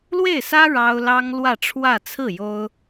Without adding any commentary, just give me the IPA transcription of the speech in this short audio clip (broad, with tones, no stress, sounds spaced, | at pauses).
l w e˥˩ ɪ̯ s ä˥ ɻ ɑ˥ ʊ̯ l ɑ˥ ŋ l w ä˥˧ ʈ͡ʂʰ w ä˥˧ t͡sʰ ɹ̩˥˩ j o˥ ʊ̯